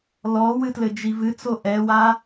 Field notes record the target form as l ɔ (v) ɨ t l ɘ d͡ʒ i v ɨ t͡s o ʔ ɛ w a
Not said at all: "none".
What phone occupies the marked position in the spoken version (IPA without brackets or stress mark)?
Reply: w